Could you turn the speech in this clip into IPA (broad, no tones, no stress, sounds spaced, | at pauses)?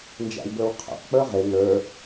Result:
n d͡ʒ æ̰ w b ə˞ w qʰ ɛ̰ q k͡p ə˞ ʁ ɪ ŋ ə˞